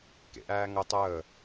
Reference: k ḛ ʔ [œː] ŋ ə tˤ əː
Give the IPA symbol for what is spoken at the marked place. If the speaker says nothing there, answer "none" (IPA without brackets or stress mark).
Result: æː